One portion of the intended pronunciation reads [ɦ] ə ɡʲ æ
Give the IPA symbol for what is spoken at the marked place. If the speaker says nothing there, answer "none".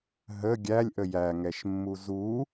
ɦ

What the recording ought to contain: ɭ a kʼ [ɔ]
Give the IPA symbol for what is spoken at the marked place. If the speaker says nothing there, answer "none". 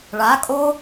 o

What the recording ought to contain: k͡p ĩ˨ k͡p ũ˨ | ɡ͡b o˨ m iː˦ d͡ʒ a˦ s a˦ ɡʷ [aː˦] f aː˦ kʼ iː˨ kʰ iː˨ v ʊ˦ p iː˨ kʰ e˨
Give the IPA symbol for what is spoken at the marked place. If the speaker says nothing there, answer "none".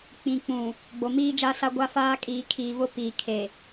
a˦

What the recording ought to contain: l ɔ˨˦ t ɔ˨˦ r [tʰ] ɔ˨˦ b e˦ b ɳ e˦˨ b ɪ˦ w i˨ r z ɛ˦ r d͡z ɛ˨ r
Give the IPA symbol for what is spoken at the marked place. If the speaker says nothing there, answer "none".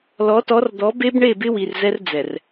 d̪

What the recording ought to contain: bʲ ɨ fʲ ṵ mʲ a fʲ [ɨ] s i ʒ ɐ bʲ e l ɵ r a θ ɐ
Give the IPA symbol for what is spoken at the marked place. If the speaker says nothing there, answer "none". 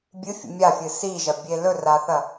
ɨ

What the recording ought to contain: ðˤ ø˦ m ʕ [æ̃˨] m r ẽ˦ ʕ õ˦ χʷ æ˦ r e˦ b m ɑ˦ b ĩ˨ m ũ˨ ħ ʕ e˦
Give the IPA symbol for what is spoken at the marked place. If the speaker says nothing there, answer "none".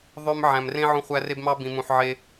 æ̃˨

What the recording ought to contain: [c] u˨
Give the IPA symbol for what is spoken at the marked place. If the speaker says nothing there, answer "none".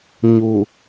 ɲ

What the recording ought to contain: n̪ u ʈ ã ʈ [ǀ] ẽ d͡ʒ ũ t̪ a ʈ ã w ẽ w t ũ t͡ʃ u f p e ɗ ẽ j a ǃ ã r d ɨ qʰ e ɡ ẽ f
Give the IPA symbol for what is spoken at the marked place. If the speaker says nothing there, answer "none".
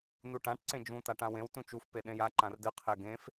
ǀ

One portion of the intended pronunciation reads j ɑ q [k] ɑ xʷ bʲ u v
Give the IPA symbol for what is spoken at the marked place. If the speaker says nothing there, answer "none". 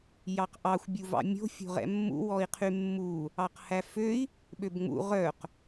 ʔ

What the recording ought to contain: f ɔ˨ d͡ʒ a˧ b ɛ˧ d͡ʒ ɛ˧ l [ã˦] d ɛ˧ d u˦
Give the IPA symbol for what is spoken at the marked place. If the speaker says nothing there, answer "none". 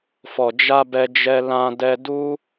ã˧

